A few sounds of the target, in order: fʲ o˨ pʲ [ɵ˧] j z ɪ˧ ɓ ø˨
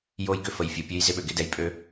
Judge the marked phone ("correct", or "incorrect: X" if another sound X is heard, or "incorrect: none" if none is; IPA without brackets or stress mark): incorrect: ø˧